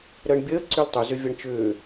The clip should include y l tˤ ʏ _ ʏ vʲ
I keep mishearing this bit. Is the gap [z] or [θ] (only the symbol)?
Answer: z